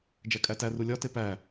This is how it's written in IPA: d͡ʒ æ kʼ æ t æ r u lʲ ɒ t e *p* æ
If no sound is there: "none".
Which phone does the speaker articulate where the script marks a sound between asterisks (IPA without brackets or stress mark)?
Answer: p